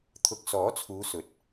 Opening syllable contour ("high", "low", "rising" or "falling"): rising